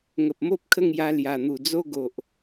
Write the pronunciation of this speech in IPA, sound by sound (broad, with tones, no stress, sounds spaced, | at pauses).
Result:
ŋ ə˨ p̚ m o˦ p̚ kʰ ə˥˧ ŋ j a˧ l j a˨˩ n̪ u˨˩ d͡z o˦ ɡ o˨ ʔ